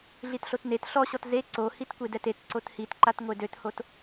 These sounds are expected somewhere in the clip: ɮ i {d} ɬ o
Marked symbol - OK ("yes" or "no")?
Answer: no